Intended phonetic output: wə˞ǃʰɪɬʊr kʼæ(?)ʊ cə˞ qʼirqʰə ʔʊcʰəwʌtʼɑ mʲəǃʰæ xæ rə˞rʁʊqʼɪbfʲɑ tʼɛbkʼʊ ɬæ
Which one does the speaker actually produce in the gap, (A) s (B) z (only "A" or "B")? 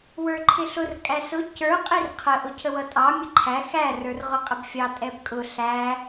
A